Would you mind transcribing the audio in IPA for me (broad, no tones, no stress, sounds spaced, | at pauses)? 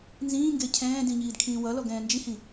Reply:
n z ĩː ŋ ɡ e cʰ ɛ̃ː d ĩ ɲ iː d kʰ ĩː w ʌ l ɔ ɡ ɛ̃ː n d͡ʒ i h ĩ